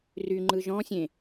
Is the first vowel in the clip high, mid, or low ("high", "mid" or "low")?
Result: high